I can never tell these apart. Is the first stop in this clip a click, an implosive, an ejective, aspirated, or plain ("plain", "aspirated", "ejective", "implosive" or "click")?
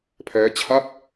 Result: aspirated